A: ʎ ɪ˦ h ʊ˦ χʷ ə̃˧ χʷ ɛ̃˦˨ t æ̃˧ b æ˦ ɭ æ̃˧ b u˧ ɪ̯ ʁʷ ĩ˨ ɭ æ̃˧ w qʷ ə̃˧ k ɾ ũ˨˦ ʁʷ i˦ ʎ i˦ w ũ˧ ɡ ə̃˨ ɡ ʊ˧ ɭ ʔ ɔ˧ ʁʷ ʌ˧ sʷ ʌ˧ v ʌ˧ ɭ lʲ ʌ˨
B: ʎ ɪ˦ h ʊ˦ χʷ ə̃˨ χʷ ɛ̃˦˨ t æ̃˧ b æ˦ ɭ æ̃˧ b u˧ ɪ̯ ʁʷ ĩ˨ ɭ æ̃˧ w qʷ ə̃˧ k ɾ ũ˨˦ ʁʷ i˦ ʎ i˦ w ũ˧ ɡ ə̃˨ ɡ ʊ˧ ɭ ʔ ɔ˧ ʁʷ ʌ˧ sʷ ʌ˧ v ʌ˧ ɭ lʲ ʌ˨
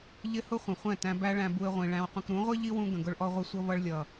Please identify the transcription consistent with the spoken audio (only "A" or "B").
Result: B